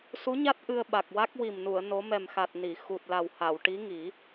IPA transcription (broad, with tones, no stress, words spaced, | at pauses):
su˧˥ɲa˦˥t̚ ʔɨ˧ə̯ɓa˨˩k̚wa˦˥k̚ wi˨˩mnu˨˩˨ə̯ no˧˥ mɛ˨˩mxa˨˩t̚ ni˨˩˨ xu˨˩t̚la˨˩wha˨˩˨w ʈi˧˥ŋi˨˩˦